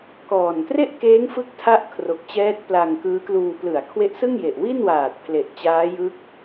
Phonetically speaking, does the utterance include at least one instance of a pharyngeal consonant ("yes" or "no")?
no